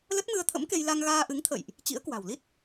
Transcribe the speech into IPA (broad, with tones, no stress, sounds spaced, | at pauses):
l ə˦˥ t̚ m ɨ˧ ə̯ t̪ʰ ə̰˧˥ m k e˧ j l a˧ ŋ ɣ aː˧ ʔ ɨ˨˦ ŋ t̪ʰ ə̰˧˨ j ʔ | t͡ɕ ḭ˧˥ ə̯ k w a̤˨˩ w l i˦˥ t̚